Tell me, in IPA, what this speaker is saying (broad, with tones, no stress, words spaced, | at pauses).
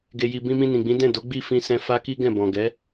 ɡe˨ji˨ bĩ˧mĩ˧nĩ˨ɡ͡bĩ˨˦ dɛ̃˦˨do˨˦ ɡ͡bi˦˨fĩ˧sɛ̃˧ fa˦ki˦ɡɛ̃˦˨bɔ̃˨ ɡɛ˨˦